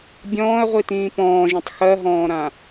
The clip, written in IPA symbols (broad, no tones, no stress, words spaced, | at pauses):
bʲɔ̃ːɐ̯ʁʷitĩː pɔ̃ːʒĩtˤ xɜɦɔ̃ːɾã